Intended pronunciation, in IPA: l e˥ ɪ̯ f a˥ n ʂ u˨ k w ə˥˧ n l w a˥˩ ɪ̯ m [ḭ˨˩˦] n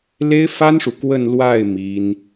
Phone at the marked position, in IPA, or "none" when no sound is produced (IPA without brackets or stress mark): i˥